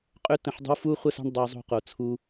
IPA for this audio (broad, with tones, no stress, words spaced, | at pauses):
qʼø˦tə̃˧ħdˤə̤˦w fu˦ χʷə˦sa̤˦ɳ dˤa˧zˤo̤˧qo˨ t͡sʰu˧